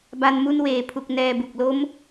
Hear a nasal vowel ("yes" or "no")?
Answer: no